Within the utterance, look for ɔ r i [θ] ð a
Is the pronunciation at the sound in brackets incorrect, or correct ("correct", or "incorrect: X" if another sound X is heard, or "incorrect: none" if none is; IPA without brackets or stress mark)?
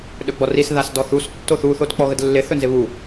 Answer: incorrect: s